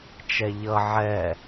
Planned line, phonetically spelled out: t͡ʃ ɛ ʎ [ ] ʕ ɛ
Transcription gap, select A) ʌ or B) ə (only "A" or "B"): A